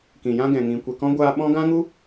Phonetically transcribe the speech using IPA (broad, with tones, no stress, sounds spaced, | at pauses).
k ĩ˨ j ã˧ ɡ ɛ̃˨ ŋ ĩ˨ kʷ e˨ k ɔ̃˧ ɡʷ aː˧ ɓ ɔ̃˦ ɡ ã˦ ŋ u˦